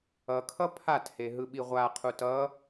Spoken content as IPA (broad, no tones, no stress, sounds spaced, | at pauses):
ʌ kʰ ʌ pʰ a t h e ɦ ɯ ɓ i ʁʷ a qʰ u t ʌ